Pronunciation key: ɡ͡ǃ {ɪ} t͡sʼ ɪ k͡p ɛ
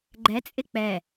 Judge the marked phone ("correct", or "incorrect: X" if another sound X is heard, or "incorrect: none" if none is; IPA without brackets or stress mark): incorrect: ɛ